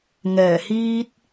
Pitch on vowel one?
low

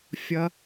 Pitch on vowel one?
low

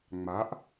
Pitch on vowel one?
rising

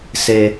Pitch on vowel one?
high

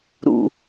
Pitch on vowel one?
low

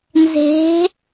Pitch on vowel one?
rising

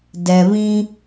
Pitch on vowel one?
low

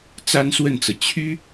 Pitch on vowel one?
high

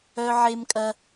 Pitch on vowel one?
high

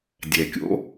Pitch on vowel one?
low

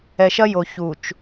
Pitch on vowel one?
low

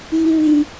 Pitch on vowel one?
low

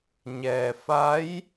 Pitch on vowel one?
low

